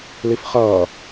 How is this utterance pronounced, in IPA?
l i f χ ʌː

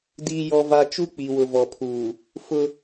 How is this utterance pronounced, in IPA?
d iː˦ j ɔ˦ v a˦ t͡ʃ u˦ k͡p i˨ w ʊ˨ v ɔ˨ pʰ uː˨ | f ʊ˦

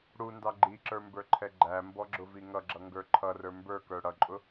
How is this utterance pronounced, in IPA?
ɽ u n d ɑ ɡ͡ǃ i ǁ ə˞ m b ə˞ ǃʰ ɛ ɡ͡ǃ æ m b ɔ ɡ͡ǁ ʊ v i ŋ ʌ ɡ͡ǁ ʌ ŋ ɡ ə˞ ǃʰ ʌ r ə˞ m b ə˞ k ə˞ ɽ ʌ ǃʼ ʊ

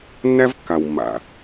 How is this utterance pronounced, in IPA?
nː æ˦ v kː a˨ w mː a̰˨

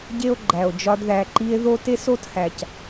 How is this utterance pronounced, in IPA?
ɟ e˦ o̯ ɡ͡ǃ æ˨ o̯ d͡ʒ ɒ˧ d ð æ˨ ǃ i˧ e̯ ð o˦ t e˦ s o˦ t h æ˨ c

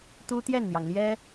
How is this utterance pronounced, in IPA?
t̪ u˥ t̪ j ɛ˥˩ n n̪ j ɑ˩ ŋ l j ɛ˥

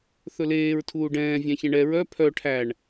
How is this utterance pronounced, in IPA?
θ ɵ l eː ɹ tʰ uː ɖ ɛ̃ː vʲ æ̃ ç ɛ̃ ɳ ɛ ɹ œ pʰ œ ʈʰ æ ɳ

